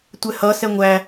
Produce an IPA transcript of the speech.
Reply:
tʷ ɛ h ʌ s ɛ ŋʷ æ

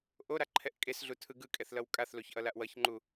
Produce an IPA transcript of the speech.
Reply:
ʔ o ɾ a ǃʰ ɛ ʔ kʼ e s ɮ u tʰ ɯ ɡ ɯ kʼ ɛ θ l ʌ w kʼ a θ l o ç ʔ ʌ l a ʔ w ʌ ç ŋ͡ǃ u

